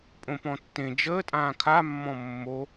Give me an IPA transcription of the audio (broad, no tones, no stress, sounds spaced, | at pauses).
pʼ õ p ɔ̃ tː ẽ d͡ʒ əː tʼ ãː kʰ a mː ɔ̃ mː o